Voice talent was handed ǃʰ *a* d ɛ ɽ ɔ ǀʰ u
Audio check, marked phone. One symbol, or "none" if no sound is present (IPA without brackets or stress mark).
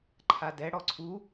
a